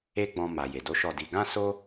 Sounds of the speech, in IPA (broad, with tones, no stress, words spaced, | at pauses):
e˦ɡ͡bɔ̃˧ ma˨je˨do˨˦ ʃɔ˦˨di˧ ɡã˦so˦